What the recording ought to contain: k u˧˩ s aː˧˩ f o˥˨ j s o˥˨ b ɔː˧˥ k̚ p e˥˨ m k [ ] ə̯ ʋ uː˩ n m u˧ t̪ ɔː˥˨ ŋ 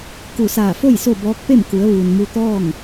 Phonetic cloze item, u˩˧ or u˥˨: u˩˧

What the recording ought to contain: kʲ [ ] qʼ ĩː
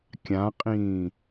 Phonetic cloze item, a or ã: ã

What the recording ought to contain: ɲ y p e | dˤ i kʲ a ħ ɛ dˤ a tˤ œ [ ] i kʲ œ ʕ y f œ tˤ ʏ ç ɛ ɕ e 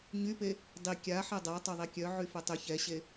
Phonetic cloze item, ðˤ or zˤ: ðˤ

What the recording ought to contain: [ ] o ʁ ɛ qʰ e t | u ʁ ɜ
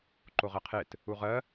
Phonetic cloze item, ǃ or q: ǃ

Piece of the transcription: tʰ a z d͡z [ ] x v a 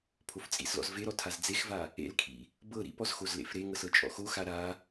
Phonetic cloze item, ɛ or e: e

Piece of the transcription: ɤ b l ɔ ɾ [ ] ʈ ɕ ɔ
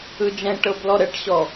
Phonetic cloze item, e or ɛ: ɛ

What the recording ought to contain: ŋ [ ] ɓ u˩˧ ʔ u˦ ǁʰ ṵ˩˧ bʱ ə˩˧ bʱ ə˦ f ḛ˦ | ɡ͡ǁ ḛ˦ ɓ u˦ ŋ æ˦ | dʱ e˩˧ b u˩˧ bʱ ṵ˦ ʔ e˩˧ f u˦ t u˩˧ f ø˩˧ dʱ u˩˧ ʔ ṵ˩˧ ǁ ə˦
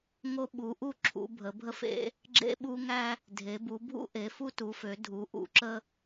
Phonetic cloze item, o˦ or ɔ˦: o˦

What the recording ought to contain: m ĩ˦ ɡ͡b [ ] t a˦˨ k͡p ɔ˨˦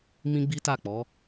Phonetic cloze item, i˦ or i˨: i˦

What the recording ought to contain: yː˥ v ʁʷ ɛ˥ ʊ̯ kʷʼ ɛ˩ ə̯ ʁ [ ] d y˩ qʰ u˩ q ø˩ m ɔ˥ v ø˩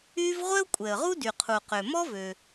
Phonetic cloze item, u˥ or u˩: u˥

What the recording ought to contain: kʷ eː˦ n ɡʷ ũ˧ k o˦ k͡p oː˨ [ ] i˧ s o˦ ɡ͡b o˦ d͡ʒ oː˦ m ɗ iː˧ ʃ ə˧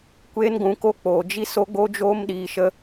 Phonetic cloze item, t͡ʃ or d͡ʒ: d͡ʒ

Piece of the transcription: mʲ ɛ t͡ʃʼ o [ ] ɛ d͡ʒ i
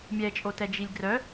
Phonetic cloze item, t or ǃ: t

